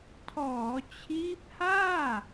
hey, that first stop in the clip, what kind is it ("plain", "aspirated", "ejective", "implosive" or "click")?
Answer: aspirated